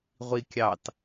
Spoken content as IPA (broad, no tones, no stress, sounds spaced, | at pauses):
ʁʷ i kʲ ɑ t